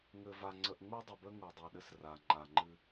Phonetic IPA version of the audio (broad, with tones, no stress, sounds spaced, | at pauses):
ŋ ɘ˨ v a˨ ŋ͡ǀ ə˨ ʔ ŋ͡m u˦ dˤ ɘ˨ b ə˦ ŋ u˨ dˤ u˨ ɗ ɘ˦ s r a˨ ŋ͡ǃ a˨ ŋ͡ǃ ɨ˦